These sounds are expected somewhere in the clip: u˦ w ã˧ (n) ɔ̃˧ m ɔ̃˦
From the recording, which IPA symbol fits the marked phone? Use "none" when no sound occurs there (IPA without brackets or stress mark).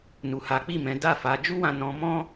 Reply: n